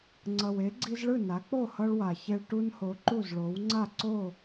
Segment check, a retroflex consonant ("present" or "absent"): present